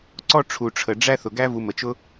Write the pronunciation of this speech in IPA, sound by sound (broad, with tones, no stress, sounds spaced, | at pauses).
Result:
ǀ ɔ˦ ʈ͡ʂʰ u˩ ʈ͡ʂʰ ə˩ ɖ͡ʐ æ˦ θ ʊ˩ ɡ æ˦ v u˨ m ə˩ t͡ʃ ʊ˦